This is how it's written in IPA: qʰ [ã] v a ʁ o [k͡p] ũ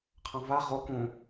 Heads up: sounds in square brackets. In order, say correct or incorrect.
correct, incorrect

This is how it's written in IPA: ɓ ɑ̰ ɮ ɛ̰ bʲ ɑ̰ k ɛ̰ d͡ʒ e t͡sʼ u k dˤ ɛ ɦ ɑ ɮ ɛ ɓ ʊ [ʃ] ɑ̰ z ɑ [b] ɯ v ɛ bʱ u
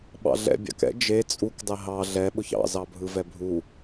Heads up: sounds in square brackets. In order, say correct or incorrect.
incorrect, incorrect

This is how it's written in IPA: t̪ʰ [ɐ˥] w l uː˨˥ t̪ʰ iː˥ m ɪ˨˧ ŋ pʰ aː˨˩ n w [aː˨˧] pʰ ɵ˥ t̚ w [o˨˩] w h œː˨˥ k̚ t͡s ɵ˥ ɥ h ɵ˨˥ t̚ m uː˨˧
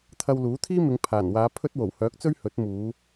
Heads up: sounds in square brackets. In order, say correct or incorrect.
incorrect, correct, correct

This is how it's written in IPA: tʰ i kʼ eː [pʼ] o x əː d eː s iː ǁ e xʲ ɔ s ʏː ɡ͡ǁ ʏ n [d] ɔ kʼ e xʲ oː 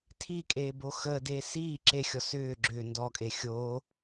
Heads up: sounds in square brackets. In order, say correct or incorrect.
incorrect, correct

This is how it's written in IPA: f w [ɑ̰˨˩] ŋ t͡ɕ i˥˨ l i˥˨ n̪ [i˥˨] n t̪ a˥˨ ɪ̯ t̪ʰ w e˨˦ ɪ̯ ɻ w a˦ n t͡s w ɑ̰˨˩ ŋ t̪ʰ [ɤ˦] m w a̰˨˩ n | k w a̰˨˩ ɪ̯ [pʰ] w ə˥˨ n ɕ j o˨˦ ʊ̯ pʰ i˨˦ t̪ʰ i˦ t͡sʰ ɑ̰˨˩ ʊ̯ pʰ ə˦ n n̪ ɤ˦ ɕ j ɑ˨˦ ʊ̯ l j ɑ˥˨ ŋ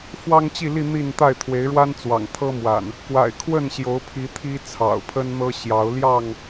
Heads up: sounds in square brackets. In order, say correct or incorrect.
incorrect, correct, correct, incorrect

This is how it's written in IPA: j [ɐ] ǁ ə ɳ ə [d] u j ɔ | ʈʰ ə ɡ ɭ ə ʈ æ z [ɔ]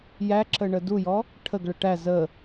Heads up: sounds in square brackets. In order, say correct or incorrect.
incorrect, correct, incorrect

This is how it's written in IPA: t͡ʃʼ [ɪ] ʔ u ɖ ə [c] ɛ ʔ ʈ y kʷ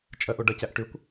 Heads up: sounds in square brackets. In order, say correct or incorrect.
incorrect, correct

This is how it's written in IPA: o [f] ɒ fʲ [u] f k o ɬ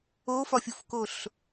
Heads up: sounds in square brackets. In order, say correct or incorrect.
correct, correct

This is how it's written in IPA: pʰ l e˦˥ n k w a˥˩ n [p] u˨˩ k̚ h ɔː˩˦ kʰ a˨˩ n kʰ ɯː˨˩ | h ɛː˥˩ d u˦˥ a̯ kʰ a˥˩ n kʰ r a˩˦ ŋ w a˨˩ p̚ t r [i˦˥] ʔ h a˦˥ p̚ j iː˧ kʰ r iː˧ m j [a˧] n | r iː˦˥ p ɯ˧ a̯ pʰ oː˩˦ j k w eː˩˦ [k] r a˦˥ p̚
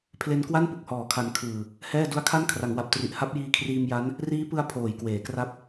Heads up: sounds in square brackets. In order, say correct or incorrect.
correct, incorrect, incorrect, correct

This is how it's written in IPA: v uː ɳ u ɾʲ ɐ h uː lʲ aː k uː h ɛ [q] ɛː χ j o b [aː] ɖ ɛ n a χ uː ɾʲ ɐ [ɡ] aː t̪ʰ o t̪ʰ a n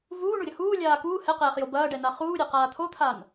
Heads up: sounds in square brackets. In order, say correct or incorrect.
correct, incorrect, incorrect

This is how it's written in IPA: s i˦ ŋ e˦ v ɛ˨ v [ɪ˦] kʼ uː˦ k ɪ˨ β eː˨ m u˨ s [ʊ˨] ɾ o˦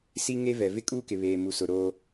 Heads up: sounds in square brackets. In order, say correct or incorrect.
correct, correct

